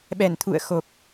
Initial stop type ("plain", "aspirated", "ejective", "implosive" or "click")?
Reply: implosive